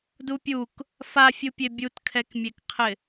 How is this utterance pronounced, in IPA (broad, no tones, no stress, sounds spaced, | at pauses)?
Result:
d u pʲ u k | f a fʲ u pʲ e bʲ u t kʰ ɛ k mʲ e k qʰ ɪ